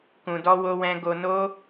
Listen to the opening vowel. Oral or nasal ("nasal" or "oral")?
nasal